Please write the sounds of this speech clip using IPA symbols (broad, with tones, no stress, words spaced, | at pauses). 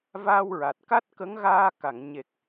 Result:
vaː˧wɹa˨˩t̚ ka˦˥t̚kə˧˥ŋɣaː˧ka˨˩˨ŋ ɲe˨˩k̚